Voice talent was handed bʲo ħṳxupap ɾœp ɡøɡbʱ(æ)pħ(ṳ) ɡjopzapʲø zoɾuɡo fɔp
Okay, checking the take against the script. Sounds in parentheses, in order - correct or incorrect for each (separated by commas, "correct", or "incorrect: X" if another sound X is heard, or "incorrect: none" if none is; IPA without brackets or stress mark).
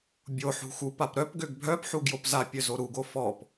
incorrect: œ, incorrect: u